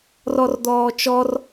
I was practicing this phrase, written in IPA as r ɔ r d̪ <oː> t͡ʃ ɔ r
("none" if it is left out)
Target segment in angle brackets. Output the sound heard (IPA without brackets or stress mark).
ɔː